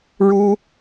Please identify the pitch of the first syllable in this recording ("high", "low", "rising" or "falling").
high